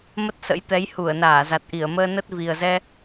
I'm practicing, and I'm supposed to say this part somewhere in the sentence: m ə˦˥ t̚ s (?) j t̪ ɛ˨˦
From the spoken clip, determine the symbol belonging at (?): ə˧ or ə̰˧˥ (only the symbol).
ə̰˧˥